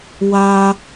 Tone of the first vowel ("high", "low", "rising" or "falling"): high